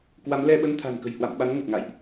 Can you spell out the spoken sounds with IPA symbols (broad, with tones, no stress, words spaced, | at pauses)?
kwa˨˦mlɛ˧ɓə˧n t̪ʰa̤˨˩nkə̤˨˩j hwa̰˧˨mɓa˨˦nŋə˨˩t̚ŋa̰ː˧˨jʔ